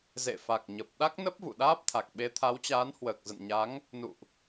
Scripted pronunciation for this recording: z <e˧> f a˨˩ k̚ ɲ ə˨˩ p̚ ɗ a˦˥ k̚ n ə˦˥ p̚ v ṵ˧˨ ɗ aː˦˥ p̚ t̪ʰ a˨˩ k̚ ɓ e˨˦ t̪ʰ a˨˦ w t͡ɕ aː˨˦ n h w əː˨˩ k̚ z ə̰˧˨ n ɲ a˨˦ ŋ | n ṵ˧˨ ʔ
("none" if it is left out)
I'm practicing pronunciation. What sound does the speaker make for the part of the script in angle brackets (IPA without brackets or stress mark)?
ḛ˧˨